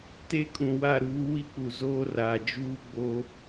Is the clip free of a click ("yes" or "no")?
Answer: yes